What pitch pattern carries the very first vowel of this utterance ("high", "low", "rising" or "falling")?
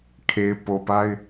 low